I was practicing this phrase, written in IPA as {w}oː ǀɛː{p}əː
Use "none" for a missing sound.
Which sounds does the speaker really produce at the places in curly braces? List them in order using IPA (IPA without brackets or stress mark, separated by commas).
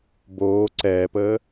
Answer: b, p